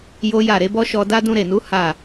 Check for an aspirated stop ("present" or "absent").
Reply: absent